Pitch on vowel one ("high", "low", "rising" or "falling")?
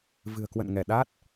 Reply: low